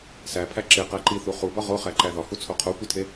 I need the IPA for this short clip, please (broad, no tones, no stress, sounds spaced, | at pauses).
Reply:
s æ pʰ æ ǁ e q æ ǃ i θ u χ u b ɒ ʁ o χ æ ǃ æ ð ɒ h u t͡sʰ o qʰ o kʷ i tʰ e